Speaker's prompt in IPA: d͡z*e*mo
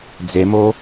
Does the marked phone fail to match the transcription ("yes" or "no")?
no